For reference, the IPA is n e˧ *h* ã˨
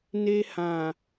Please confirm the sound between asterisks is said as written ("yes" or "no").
yes